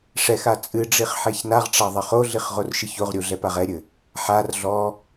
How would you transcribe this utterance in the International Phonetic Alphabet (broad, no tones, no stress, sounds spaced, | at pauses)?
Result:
ʂ ɛ x a t͡sʼ ɨ ɖ͡ʐ i χ ħ ɛ ç n a ʁ ʈ͡ʂ a ðˤ ɐ χ o ɮ i χ ʁ o r ʃ ɨ ç o ʁ ɾʲ u ɮ ɛ p a ʁ ɛ ɾʲ ɘ | ħ a r ɮ ɔ